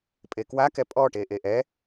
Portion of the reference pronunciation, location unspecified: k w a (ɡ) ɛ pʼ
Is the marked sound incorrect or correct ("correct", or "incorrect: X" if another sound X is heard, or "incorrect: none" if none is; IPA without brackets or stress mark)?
incorrect: k